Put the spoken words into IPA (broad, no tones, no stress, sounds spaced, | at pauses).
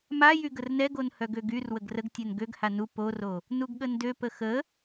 m a j y ɡ ə r n ɛ ɡ o n h œ ɡ ø ɡ y r w ə ɡ r ə ɡ tʲ ɛ n ɡ ø ɡ h a n u p o r o | n u ɡ ɠ ə n d ø p ə x ə